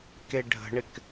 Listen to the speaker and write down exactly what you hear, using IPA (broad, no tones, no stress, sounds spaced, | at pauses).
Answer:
k e ɖʱ ə̤ ɳ ɪ k